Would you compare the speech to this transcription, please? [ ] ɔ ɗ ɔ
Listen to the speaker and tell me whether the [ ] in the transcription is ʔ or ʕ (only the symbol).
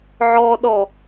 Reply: ʕ